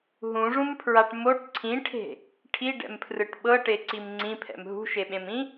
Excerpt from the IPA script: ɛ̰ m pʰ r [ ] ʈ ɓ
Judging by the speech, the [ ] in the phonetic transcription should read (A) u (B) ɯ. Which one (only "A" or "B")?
B